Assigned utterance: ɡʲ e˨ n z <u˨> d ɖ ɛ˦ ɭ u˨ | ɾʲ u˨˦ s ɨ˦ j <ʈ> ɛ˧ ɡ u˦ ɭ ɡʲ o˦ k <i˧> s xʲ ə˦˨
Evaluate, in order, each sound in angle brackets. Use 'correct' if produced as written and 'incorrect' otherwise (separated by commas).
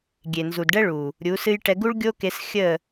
correct, correct, incorrect